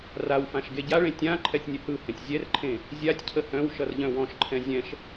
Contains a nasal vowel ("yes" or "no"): yes